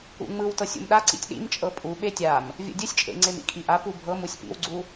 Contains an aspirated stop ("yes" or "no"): no